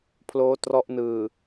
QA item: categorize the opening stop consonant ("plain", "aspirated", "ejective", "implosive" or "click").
aspirated